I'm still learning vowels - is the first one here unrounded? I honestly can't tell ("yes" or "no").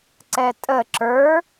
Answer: yes